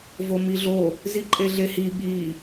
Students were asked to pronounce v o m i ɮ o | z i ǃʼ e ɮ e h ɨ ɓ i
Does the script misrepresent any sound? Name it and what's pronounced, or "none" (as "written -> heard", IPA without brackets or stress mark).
ɨ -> i